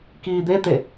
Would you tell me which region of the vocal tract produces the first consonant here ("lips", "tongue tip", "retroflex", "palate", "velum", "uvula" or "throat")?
velum